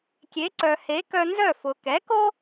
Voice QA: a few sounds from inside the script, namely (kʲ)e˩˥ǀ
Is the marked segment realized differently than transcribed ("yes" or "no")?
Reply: no